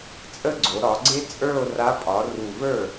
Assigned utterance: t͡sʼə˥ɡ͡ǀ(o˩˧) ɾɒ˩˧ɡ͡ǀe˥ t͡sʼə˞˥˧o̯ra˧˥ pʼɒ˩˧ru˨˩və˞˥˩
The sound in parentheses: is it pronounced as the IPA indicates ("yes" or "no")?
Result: yes